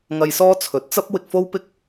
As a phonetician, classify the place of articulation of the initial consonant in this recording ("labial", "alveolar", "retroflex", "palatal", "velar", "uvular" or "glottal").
velar